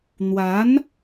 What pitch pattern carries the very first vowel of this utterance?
rising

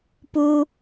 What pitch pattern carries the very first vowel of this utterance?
high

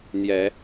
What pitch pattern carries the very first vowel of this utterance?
rising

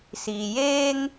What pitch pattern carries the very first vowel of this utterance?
low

